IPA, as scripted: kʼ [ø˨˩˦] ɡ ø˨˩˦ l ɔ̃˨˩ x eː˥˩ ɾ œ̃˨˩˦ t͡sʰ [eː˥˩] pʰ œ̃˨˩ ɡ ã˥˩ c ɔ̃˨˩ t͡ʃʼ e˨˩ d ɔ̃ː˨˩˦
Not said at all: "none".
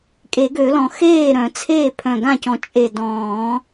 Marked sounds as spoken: e˨˩˦, eː˥˩

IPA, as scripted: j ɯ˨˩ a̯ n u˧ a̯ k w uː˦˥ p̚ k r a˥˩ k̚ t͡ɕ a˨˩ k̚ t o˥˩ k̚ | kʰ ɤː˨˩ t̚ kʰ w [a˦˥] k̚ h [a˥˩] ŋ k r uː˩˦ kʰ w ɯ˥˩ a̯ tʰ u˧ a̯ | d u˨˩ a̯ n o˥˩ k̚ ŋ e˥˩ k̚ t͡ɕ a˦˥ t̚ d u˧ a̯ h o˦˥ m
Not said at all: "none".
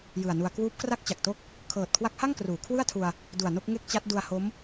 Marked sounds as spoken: a˦˥, a˥˩

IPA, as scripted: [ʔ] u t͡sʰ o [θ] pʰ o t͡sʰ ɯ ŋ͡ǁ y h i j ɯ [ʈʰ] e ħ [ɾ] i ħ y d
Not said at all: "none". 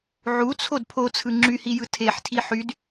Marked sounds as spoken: ʕ, d, tʰ, tʰ

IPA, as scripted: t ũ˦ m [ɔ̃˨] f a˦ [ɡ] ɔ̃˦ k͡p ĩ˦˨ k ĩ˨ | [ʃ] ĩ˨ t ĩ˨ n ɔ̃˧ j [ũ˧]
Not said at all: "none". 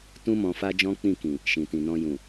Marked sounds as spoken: ɔ̃˧, d͡ʒ, ʃ, ũ˨

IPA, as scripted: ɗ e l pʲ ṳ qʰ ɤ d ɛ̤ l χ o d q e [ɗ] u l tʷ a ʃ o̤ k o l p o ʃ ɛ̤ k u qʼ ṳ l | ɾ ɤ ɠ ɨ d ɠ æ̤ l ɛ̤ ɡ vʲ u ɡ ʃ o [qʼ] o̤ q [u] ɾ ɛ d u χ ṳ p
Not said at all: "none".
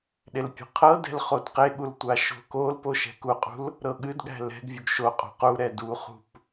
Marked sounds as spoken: ɠ, qʼ, u

